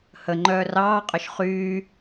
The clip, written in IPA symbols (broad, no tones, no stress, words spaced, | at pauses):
hə ŋ͡ǃœːrɑː qʼœʃχyː